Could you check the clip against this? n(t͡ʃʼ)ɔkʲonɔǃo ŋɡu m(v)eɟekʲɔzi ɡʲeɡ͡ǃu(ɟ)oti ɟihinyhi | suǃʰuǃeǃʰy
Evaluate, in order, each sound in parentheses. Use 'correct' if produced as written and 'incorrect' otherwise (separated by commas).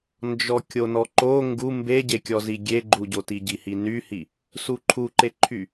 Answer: incorrect, incorrect, correct